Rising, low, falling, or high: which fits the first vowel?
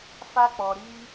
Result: high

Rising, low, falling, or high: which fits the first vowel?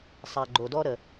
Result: low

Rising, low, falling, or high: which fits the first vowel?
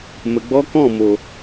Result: low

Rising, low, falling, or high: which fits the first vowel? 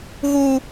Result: high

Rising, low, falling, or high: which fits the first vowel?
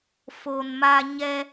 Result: low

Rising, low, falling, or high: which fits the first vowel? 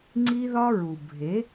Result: high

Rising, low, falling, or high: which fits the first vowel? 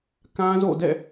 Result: high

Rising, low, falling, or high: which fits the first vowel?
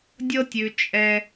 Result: high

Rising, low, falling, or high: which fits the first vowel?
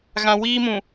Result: low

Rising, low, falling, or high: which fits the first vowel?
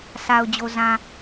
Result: low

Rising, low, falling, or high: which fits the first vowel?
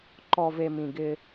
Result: low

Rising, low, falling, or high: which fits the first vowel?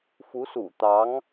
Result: rising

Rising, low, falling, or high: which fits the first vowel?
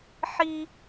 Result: high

